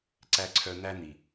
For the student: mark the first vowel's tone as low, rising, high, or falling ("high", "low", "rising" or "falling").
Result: high